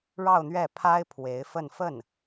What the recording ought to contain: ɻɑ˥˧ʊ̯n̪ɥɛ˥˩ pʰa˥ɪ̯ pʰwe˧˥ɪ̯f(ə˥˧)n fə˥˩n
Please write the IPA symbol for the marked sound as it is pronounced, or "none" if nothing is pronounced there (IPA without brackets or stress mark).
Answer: ə˥˧